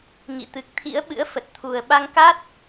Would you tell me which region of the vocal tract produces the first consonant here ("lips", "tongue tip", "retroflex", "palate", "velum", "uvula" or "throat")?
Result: velum